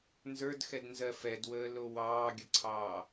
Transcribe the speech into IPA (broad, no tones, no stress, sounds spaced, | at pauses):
n z ə˞ d x ɛ d n z ɜ f ɛ d w əː l o w ɑː ɡʲ ə ǀʰ ɑː